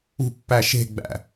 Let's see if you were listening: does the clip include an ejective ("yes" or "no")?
no